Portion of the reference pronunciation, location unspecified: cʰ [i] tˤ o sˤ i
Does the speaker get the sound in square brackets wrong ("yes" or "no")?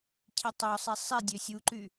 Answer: no